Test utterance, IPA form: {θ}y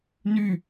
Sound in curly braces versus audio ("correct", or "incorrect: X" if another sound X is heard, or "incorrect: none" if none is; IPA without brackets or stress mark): incorrect: n